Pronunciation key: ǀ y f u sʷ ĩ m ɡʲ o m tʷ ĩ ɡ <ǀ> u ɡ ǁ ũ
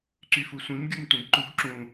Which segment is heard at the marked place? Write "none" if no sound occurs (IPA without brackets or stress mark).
ǃ